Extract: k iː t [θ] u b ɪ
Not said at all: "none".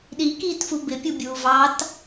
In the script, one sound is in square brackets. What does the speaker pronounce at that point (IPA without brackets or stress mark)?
f